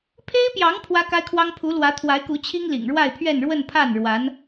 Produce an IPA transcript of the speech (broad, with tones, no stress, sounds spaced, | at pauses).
pʰ e˥ ɪ̯ p j ɑ˧˥ ŋ pʰ w ä˥ k a˥ ɪ̯ kʰ w ɑ˥ ŋ pʰ u˧˥ l w ä˧˥ t̪ʰ w a˧˥ ɪ̯ k u˧˥ t͡ɕʰ i˥ ŋ l ḭ˨˩ ŋ ɻ w a˥˧ ɪ̯ pʰ ɥ ɛ˥˧ n ɻ w ə˥˧ n pʰ a˥˩ n ɻ w a˧˥ n